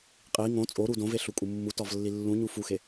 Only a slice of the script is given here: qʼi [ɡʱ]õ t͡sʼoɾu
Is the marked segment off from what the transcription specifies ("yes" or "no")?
yes